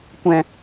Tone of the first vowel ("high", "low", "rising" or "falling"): low